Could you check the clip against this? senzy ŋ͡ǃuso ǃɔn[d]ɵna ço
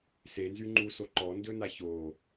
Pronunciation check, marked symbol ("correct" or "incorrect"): correct